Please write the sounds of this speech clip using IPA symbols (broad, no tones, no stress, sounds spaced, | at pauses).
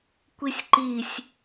kʷ i sʲ ǃ i sʲ